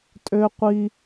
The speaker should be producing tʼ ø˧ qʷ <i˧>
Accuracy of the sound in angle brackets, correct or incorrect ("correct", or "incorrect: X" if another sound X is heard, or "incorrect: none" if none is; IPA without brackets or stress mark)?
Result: correct